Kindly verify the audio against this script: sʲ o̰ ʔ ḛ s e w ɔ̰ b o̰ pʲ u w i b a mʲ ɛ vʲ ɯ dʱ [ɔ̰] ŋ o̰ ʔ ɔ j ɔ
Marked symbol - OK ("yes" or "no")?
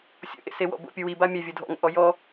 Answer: yes